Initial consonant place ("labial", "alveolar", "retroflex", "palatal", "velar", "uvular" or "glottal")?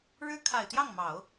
retroflex